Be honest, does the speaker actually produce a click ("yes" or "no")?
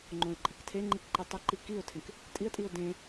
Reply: yes